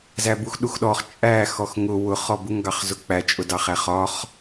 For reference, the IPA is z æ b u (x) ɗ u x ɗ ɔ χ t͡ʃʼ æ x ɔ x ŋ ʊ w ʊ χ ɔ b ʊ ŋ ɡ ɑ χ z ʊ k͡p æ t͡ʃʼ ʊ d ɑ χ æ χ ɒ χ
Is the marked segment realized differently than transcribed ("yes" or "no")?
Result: no